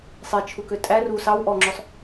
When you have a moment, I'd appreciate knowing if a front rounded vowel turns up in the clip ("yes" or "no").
yes